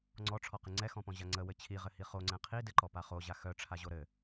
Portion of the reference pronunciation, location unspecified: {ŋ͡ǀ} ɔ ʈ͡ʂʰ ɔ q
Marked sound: correct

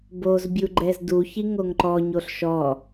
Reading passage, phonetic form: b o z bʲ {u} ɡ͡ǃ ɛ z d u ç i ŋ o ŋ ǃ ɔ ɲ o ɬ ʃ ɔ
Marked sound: correct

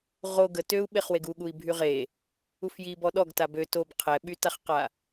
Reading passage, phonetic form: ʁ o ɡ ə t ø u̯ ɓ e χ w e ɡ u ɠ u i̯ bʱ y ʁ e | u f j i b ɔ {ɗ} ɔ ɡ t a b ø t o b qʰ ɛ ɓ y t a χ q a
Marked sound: correct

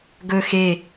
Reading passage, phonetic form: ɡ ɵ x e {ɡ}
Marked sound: incorrect: none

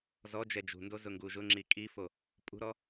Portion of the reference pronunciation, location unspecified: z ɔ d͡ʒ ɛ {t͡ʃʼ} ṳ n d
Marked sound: incorrect: d͡ʒ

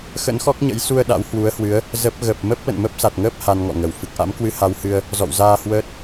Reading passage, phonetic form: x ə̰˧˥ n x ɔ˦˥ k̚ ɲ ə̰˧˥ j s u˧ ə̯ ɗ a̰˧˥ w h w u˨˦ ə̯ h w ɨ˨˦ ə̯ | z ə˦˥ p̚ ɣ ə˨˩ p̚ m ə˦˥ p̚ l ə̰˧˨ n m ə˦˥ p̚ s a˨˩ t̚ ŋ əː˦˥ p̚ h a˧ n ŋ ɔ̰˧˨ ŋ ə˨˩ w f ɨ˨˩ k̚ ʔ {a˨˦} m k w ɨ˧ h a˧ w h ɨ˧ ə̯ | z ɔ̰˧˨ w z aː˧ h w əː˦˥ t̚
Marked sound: incorrect: a̰˧˥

